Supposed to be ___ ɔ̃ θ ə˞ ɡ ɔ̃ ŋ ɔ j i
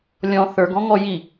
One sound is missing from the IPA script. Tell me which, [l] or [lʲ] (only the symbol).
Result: lʲ